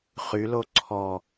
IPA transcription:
χylo ǀʰɔ

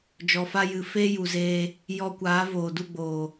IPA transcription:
d͡ʒɔ˨fa˧jɨ˨ feː˦ju˨zeː˧ | jɔ˧kʷaː˨˦ voː˨du˦˨ɡ͡boː˨

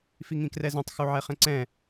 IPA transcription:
fiŋĩkrɛzœ̃tˤ xuʕɛχɛ̃ǀɛ̃

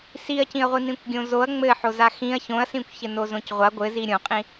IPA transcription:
siɐ̯cĩɐ̯ʁʷi nĩkʷɡʲõzoɐ̯ ŋ͡mɘħo zaxĩɐ̯ çõɐ̯sĩkʷçɘ nozõcʁʷa ɡʷɘzi ɾʲõqʼĩ

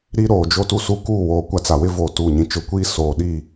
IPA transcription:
ɾi˦ɾoː˨ d͡ʒo˦tu˦su˦kuː˦˨ woː˨ kʷa˦t͡sa˨wɪ˦ voː˨tuː˨ɲĩ˨ t͡ʃʊ˨kʷiː˦ soː˨ɗi˦˨

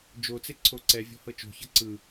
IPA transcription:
d͡ʒot͡se ǀʰoǀɛvʲɔ̤ hɤt͡ʃo̤çɤ ǀɯ

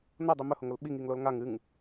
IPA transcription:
nodˤi mɵhoŋol ɓiŋiŋlol ŋaŋ ɨŋ

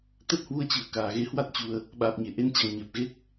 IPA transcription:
t̪ə˦˥t̚hwu˧ə̯t͡ɕɨ˧˩ə̯ kaː˧˩ ɣe˨˦hwa˦˥t̚t͡ɕu˨˩ə̯ | ɓaː˨˩p̚ɲe˧˩ ʔe˧nt͡ɕa˨˩ŋ ɲɛ˨˩p̚ɣe˦˥k̚

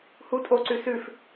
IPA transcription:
hu tʼoǀʉ sʉf

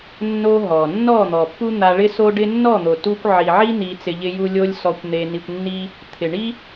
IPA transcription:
nːo˧ ɦɔ˨ nːɔ˦˨n̪ɔ˨pːu˦ n̪a˧ɭɪ˦so˦ɖɪ˦ nːɔ˦˨n̪o˨tu˧kʷ ʕi˨ʕi˦ n̪i˧t͡sɪ˧ʎɪ˦ju˦ lʲo˦lʲsɔ˧kʷ n̪e˧ni˧kʷnːi˦ | t̪ʰɪ˨ɳi˦

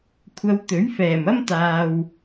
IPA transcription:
kʷʰɐ˧wt̪ɵ˨˥ɥ fɛː˨˩mɐ˥mt̪aː˨w

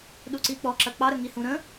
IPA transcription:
ɗuǀik͡pɔ ǁɐk͡pɑ ɾəŋihũɾə̃

